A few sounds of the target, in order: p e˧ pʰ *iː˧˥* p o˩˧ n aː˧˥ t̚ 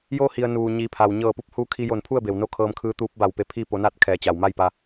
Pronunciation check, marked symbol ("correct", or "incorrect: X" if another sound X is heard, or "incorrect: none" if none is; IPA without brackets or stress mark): incorrect: iː˥˨